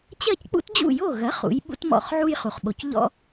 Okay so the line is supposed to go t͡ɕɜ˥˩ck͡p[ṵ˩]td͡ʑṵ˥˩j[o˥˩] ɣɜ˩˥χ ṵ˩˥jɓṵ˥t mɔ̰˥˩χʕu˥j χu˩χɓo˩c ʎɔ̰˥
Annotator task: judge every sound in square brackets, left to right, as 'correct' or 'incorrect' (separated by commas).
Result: incorrect, correct